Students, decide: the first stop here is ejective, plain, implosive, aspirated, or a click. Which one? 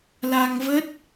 plain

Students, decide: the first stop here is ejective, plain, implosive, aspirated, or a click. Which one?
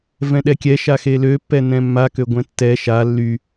implosive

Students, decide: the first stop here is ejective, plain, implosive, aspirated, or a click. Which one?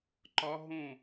click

